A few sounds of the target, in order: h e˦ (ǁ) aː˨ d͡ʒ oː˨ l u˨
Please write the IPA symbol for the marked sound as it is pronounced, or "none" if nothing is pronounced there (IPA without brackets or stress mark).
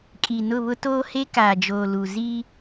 k